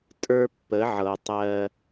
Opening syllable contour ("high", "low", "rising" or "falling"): high